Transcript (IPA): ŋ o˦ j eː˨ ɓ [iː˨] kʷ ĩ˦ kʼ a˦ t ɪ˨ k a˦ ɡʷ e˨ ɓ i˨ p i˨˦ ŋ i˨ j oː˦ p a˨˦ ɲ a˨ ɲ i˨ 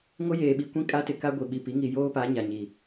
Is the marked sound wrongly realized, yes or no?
yes